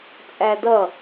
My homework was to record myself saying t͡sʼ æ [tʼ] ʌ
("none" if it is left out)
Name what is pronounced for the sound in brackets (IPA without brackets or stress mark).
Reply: d